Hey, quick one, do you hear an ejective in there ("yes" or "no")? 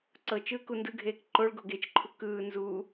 no